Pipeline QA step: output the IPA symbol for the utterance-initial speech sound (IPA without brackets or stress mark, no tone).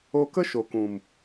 o